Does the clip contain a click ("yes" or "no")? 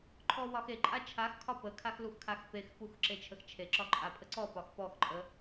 yes